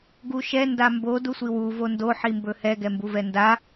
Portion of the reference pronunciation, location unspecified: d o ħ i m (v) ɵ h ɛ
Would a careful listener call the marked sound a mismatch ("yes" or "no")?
yes